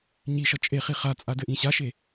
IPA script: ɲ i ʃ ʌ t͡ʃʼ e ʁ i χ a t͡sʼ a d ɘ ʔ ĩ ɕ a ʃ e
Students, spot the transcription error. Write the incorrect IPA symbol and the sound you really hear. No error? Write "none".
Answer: ʁ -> χ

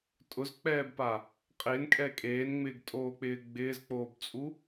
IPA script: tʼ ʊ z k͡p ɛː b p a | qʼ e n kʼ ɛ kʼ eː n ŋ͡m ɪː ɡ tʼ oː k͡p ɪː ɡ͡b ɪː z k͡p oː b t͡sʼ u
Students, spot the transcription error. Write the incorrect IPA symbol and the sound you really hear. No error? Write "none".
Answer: none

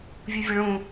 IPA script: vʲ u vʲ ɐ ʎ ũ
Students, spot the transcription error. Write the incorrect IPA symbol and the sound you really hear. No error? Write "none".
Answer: ʎ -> ɭ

